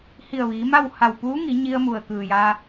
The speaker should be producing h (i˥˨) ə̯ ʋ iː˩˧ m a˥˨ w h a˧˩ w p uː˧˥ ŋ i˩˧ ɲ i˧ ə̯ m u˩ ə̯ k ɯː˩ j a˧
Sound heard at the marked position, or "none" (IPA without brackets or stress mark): i˧˩